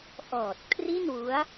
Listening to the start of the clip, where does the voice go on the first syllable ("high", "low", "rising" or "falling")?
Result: low